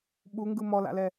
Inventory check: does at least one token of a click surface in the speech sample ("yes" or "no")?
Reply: no